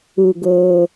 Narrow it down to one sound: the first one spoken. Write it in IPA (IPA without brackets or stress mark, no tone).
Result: u